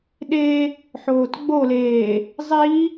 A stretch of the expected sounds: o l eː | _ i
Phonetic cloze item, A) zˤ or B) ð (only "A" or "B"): A